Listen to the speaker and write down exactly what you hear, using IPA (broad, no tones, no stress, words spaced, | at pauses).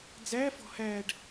d͡zæfɔ̤ hæɖ